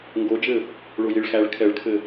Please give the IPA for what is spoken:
ŋɡod͡ʒɘ | ɭojiɭxæɭ kʰɛɭkʰɘ

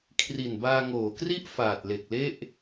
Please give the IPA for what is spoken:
kʰri˨˩nbaː˧ŋoː˩˦kri˥˩ʔ faː˨˩t̚le˨˩k̚le˥˩ʔ

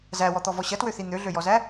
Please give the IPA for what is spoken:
zæwɔt̪ɔvɔ ɕɐtwøθi n̪øɮøjɔzæ

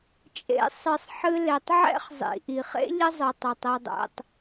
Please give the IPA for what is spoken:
t͡ʃʼḛ˨ sˤɨ˩sˤħɨ˨le˩tˤʕɛ̰˦χ zˤḭ˩ ʔi˩χḛ˥ʎɘ˦zˤɨ˩ tˤɛ˩tˤɛ˨dˤɛ̰˨tˤ

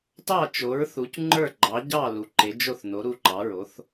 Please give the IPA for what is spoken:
tɑ˥˩t͡ʃo˩˥ɹ θu˩˥cŋ͡ǃə˞˥˩ ɡ͡ǃɑ˩˥ɟɑ˥˩ lu˩˥ǃe˩˥d͡ʒo˥˩θ no˩˥ɾu˥˩ǃɑ˩˥ɹo˩˥θ

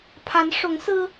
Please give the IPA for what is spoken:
pʰa˧˥nʂʊ˧˥ŋsɹ̩˥

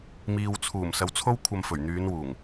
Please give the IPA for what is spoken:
miː˨wt͡sʰuː˨˩m sɐ˨˧wt͡sʰo˥wkʷʰɐ˧mfɵ˨˩ɥ n̪yː˨˧nwuː˨˩ŋ

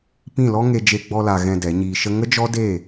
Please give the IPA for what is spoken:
pĩ˦˨lɔ˦ŋe˧ d͡ʒe˧ɡ͡bɔ˧la˨ ɣɛ̃˧dɛ˨˦ɲiː˧ʃə˦ ŋə˦d͡ʒɔ˦de˦˨

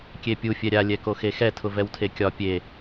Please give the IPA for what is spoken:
kʲepʲu fʲɛɾʲa lʲɛkoxexɛ tʰʊvɛwtʰekʲɒ pʲe

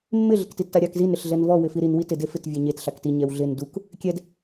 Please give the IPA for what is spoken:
mːɪ ɮɪktitːaɾʲak zin ɾɪɬɮɛnvɔ wɪfiɾin witɪ defɪt vʲɛɲet ɬakti ɲɛwɮɪn duk | kʲɛd

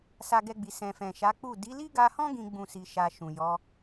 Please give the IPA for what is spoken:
sa˧ɡɛ˧ɡ͡bi˨ sɛ̃˨ fɛ̃˨ʃa˨˦ k͡pu˦˨ di˨˦li˦ɡa˧hɔ̃˦ ɡĩ˦ɡ͡bũ˦˨si˧ʃa˧ ʃũ˨jɔ˨˦

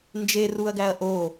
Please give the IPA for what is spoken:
nd͡ʒeruɐ̯ɡæɐ̯ ʔo

